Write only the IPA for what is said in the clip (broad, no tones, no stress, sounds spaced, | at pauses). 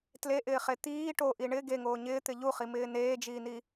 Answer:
t l e ʔ ɪː χ e t̪ iː ʈ o ʔ i ɳ ɪ ɡ e ŋ oː ɲ ɪː t̪ ɪ ʎ u χ i m ɪː n eː d͡ʒ iː n i